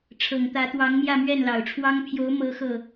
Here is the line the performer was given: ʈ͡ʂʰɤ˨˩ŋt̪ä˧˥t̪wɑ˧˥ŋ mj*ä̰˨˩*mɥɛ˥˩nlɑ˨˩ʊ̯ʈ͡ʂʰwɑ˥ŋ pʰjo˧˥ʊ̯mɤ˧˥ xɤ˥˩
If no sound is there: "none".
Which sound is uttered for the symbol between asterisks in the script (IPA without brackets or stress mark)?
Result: ä˥˧